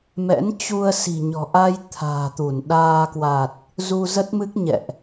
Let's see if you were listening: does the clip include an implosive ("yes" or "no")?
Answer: yes